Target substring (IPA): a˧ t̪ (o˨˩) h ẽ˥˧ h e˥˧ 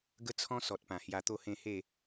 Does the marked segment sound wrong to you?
yes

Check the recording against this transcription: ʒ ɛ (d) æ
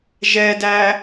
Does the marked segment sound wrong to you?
no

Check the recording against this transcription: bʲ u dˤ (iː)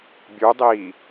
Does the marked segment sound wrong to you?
no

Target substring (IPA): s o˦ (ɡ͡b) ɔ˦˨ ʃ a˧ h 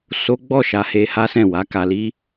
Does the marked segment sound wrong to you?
no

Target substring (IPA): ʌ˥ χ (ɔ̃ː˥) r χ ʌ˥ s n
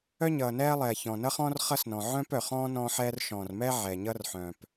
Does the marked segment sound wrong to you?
no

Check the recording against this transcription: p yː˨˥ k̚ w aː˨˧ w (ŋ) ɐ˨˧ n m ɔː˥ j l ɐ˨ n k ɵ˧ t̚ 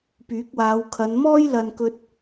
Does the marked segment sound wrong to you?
yes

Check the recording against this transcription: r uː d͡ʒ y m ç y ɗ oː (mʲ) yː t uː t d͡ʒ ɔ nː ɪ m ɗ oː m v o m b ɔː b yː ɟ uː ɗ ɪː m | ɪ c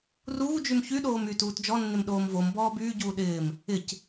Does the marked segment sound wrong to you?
yes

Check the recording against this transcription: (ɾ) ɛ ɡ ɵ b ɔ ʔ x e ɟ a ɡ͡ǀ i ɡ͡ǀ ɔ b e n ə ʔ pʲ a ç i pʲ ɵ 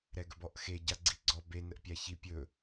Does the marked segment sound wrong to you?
no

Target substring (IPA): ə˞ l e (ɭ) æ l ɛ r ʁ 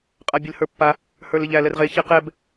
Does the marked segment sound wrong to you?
yes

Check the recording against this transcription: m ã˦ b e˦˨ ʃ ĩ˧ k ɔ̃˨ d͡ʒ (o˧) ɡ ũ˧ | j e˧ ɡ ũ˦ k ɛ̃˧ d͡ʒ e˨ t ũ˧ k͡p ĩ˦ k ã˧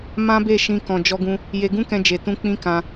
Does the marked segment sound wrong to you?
yes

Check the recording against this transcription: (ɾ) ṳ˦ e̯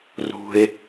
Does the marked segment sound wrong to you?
yes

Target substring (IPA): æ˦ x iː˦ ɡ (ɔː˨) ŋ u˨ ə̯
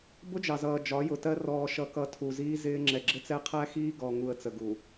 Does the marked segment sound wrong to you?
yes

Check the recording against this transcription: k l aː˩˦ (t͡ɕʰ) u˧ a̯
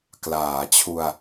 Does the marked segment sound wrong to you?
no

